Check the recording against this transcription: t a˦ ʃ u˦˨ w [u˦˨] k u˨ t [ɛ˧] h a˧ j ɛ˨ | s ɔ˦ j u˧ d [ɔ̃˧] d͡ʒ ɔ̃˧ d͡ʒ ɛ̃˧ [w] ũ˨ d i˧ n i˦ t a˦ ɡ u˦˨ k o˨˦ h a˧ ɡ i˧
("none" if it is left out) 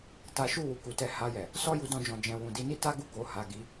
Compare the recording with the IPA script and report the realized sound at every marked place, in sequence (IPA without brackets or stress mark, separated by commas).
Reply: u˨, ɛ˧, ɔ̃˦, w